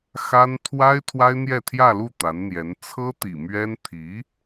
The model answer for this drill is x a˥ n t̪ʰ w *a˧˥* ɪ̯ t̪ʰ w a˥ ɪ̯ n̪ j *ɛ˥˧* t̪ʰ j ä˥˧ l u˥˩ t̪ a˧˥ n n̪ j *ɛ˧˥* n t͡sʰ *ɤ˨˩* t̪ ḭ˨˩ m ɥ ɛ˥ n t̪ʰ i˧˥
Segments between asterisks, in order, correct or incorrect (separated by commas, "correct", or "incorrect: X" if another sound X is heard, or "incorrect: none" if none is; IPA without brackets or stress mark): incorrect: a˥, correct, correct, incorrect: ɤ˥